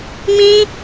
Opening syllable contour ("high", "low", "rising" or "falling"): high